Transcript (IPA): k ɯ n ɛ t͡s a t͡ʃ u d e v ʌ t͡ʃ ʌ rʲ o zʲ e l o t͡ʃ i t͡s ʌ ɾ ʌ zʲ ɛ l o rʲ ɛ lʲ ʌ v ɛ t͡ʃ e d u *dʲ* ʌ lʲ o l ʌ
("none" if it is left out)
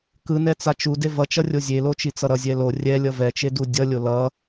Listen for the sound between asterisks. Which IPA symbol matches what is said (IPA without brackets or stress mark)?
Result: dʲ